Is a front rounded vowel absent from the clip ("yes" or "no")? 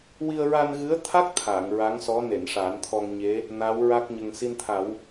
yes